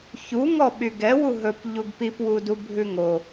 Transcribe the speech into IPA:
ç u ŋ ɔ ɓ y ɡ ɛ w u ɦ ɵ p ʎ u ɡ p i p w u d u bʱ ʉ ŋ o

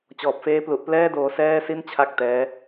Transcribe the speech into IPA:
t͡ɕ ɔː˨˩ p̚ f eː˦˥ p l u˨˩ ʔ p l ɛː˥˩ d oː˧ s ɛː˥˩ s i˥˩ n t͡ɕʰ a˥˩ k̚ t ɛː˦˥

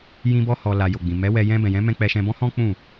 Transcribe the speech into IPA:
j ĩ˧ b ɔ˧ h ɔ˨ l a˨ j o˨ ɡ͡b ĩ˨ m ɛ˨˦ w ɛ˧ j ɛ̃˧ b ɛ̃˨ j ɛ̃˨˦ m ɛ̃˧ k͡p ɛ˧ ʃ ɛ̃˧ b ɔ̃˦ h ɔ̃˦ k͡p ũ˦˨

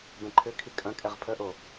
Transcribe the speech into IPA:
b ɛ̃ ǃʰ ʏ kʰ i kʼ ɐ̃ kʼ ɛ ʁ pʰ ə ʔ o

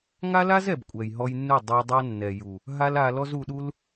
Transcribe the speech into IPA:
ŋ a˦ l a˦ z ɛ˨ b kʷʼ ɛ˨ j ɦ ɔ˧ j nː u˦˨ dˤ o˧ dˤ a˦ nː ɛ˨ j u˨ | ɦ a˦ l a˧ l ɔ˦ z u˧ ɗ u˦ l

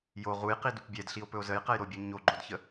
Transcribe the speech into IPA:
j o ʁ u j q i d u p bʲ ɛ d ɬ i o̯ p ɵ o̯ z ə j q ɛ j ɾ o bʲ u ɲ o ɡ͡ǃ o d ç ə

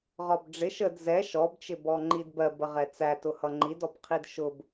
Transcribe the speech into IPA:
ʁ ɒ b ɖ͡ʐ ɪ ʃ ə d z ɛ ʃ ɔ b t͡ʃ ɪ b ɔ ŋ͡ǃ i d b ɜ b ə ʁ ɛ t͡s æ t ʊ h ʌ ŋ͡ǃ i d ɔ b qʰ i d ʃ ʊ b

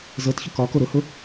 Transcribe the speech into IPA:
z ɤ t ç ʊ k ɒ k o ɾ ʊ h ʊ

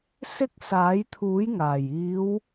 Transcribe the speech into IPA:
s ɪ˧ k̚ s aː˨˥ j t̪ʰ uː˨˥ j ŋ aː˨˩ j iː˨˧ w

